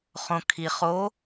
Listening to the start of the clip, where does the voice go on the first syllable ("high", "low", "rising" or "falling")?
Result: low